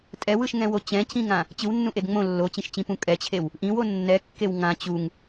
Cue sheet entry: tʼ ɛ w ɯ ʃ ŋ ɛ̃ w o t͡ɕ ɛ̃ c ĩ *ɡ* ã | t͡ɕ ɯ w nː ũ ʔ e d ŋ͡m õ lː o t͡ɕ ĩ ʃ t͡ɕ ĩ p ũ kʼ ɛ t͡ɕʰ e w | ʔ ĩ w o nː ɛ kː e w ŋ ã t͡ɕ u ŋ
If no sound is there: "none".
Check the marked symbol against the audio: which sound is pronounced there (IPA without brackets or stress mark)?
ŋ